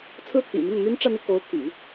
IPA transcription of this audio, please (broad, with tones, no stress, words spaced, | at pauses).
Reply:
t͡sʰɹ̩˥t̪ʰḭ˨˩ mi˥˩ŋ n̪y˥n ʈ͡ʂä˥˧n̪i˥˩ko˧˥ʊ̯ t̪ʰy̰˨˩˦